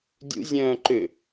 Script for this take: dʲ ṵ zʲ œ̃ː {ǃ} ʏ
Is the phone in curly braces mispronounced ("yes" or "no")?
no